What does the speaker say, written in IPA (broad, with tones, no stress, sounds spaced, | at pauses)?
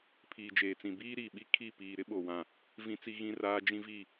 pʰ iː˨ d͡ʒ eː˨ t͡s ĩ˨ b iː˦ ɾ iː˨ ɓ i˦ kʰ i˦˨ p iː˨ ɾ ɪ˦ ɓ o˨ w ã˨ | v ĩ˦ t͡s i˦ ɣ ĩ˦ r aː˦ d͡ʒ ĩ˦ v i˦˨